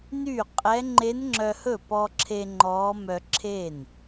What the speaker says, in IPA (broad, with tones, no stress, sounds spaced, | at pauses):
n yː˥˩ qʼ ɛ˧˥ ŋ͡ǃ e˧˥ n ŋ͡ǁ œ˧ h ɵ˥˩ p ɔ˧ ǁʰ e˧ ŋ͡ǃ ɔː˧˥ m œ˧ ǁʰ e˥˩ n